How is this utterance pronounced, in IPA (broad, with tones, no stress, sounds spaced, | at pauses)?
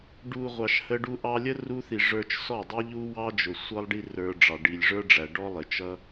ɖ u˨ ʁʷ ɑ˨ ʃ h ə˧ ɖ u˧ ʔ ɑ˧ lʲ ə˦ r u˧ θ i˨ ʐ ə˞˧ t͡ʃ s ɔ˦˨ dˤ ɛ˦ ʎ u˦ w ɑ˦ d͡ʒ ʊ˨ sʷ ʌ˦ lˠ ɖ i˦ r ə˞˧ ɖ͡ʐ ɑ˨ ɖ i˨ lʲ ʐ ə˞˦ ɖ͡ʐ æ˨ ɖ ɔ˦ lˠ ɪ˨ t͡ʃ ʌ˦